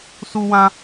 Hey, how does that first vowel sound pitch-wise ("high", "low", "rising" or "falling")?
high